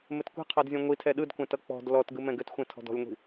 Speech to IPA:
m ɘ t kʷ i̤ qʰ ɔ d zʲ ɔ̃ ŋʷ i tʰ ɛ ɗ ɯ d kʷ ɛ̃ t ʌ k͡p ɔ̤ d l ɔ t ɡ ɯ m ɛ̃ ɡ ɘ t xʷ ɛ̃ tʰ ɔ̤ d ɔ̤ lʲ ŋʷ i̤

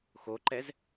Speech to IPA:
x o ǃ ɛ z

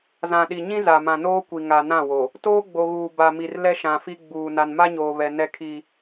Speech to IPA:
z ã˨ ɗ i˨ ɲ ĩ˦ z a˨ m ã˨ n oː˦ kʷ i˨ ŋ a˨ n ã˦˨ w o˨ | t oː˦ ɡ͡b o˨ ɣ uː˨ b a˨ m i˨ r l ɛ˦ ʃ ã˨ f i˦ ɡ͡b uː˨ n a˨ n m a˦ ɲ oː˨ β ɛ˨ n ɛ˦ kʰ i˦

